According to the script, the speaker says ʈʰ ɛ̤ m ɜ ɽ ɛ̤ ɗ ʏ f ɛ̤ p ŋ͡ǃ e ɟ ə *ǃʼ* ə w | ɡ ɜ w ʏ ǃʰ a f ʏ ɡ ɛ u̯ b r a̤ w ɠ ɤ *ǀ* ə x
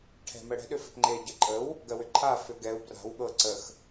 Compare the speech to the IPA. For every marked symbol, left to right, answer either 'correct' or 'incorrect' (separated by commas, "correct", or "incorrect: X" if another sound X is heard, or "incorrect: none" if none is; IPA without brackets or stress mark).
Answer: correct, correct